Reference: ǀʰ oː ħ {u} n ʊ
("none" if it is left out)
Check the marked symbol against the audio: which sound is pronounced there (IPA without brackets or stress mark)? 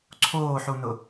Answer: u